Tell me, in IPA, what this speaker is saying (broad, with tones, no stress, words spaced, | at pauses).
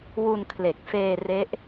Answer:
wu˧nkʰle˨˩k̚feː˧ re˦˥ʔ